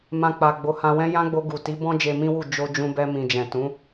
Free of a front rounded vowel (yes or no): yes